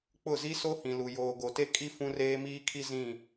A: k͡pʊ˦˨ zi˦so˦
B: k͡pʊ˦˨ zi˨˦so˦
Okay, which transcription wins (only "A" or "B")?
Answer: A